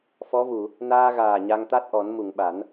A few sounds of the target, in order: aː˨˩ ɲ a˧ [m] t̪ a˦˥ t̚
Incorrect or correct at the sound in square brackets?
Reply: incorrect: ŋ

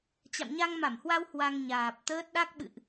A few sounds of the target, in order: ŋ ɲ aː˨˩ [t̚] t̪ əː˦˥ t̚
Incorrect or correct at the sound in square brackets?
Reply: incorrect: p̚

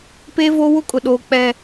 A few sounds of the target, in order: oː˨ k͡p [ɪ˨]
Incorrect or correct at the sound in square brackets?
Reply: incorrect: ɛ˨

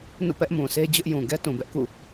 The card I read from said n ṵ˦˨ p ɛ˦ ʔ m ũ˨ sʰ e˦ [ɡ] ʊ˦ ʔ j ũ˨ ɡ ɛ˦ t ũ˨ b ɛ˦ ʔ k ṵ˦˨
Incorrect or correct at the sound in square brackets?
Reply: incorrect: d͡ʑ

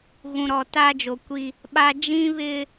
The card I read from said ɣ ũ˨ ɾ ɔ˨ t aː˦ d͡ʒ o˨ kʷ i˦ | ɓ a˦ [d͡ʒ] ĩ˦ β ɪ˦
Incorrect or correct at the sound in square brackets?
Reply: correct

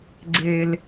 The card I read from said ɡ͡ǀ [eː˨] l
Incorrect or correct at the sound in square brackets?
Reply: correct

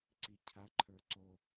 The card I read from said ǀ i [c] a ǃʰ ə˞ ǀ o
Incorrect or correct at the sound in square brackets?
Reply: incorrect: cʰ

